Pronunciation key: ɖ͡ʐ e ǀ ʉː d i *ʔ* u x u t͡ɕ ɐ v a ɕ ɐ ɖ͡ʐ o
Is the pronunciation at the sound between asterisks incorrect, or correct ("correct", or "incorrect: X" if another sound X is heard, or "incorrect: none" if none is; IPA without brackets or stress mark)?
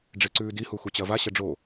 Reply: incorrect: h